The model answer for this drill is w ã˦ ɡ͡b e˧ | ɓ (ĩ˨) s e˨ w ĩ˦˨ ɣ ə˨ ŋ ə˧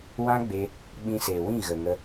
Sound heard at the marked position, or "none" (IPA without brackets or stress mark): ĩ˧